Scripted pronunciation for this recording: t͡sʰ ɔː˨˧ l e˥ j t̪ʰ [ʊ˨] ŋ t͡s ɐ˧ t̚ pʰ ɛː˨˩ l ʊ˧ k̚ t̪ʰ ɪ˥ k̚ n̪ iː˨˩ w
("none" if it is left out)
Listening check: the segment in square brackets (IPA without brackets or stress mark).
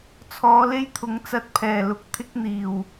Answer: ʊ˨˥